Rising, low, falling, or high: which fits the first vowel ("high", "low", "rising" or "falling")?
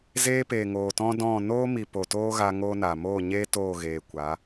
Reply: high